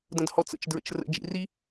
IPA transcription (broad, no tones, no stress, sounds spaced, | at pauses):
d ə̃ d h ɔ t͡s ə̰ t͡ʃ d ɹ ə̰ t͡ʃ r ə̰ d͡ʒ ḭ r i